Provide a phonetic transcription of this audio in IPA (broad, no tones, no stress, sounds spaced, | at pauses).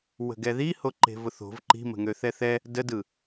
w ə̤ ɡ ɛ ð i h o ǃ e̤ v ʊ θ o̤ v ǃ i̤ m ə̤ ŋ ø θ ɛ θ ɛ | d ə d ɯ